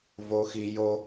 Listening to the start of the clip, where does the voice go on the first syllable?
high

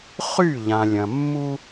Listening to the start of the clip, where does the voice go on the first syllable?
falling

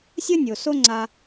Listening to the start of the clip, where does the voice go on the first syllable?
high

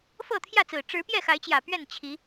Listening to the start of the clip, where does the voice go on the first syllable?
falling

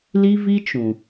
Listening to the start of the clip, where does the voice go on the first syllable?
high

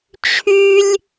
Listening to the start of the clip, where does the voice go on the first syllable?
high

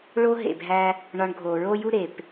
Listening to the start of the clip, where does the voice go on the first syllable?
high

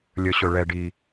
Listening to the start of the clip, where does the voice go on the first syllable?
low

